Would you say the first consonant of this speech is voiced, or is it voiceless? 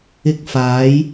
voiceless